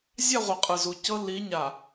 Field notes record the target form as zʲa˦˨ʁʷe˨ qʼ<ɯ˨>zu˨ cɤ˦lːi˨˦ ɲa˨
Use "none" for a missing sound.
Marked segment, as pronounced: ɯ˨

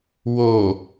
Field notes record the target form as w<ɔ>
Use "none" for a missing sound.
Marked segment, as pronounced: o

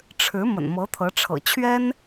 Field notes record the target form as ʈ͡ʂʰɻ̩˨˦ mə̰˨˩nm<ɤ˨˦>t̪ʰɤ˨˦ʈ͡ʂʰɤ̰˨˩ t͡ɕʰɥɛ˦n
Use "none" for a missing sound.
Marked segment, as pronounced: ɤ˨˦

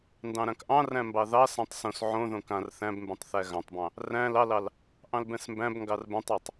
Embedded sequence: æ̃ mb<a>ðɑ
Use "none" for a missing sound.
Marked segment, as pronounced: ɑ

